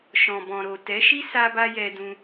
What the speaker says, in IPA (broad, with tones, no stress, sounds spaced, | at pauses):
ʃ ɔ̃˨ b ɔ̃˨ ɾ o˨ t ɛ˨˦ ʃ i˦ s a˧ b a˧ j ɛ˧ d ũ˧